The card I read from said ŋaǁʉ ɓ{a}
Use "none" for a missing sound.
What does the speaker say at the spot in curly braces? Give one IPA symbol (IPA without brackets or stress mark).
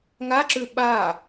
a